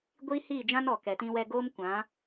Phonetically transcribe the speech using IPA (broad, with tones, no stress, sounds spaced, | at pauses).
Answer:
ɡʷ iː˦ h iː˦˨ d͡ʒ ã˦ n ɔ˨ k ɛ˨ t ĩ˧ w ɛ˧ ɡ oː˦ m kʷ ã˨˦